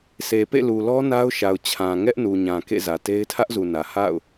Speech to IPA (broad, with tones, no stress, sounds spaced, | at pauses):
sʰ e˨ p ḛ˦˨ l u˨ l ɔ˦ n a˦ ʊ̯ ʃ a˨ ʊ̯ t͡ɕʰ ã˨ ŋ ɛ˦ ʔ n u˨ ɲ ã˨ k ḛ˦˨ z ä˨ t e˦ ɪ̯ tʰ ä˦ ʔ z u˨ n ä˨ h a̰˦˨ ʊ̯